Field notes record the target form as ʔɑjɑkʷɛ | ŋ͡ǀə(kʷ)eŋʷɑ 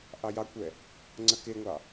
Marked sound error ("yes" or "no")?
yes